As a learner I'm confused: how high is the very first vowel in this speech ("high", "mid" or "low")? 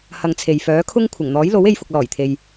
low